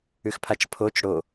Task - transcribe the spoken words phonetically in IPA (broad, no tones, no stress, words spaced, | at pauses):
ʉxpʰat͡ʃpʰot͡ʃ ɽo